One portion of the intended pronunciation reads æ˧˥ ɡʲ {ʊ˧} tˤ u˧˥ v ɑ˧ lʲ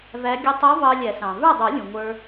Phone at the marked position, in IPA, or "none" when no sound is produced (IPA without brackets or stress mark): ʊ˧